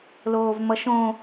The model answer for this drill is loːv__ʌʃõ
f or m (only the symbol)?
m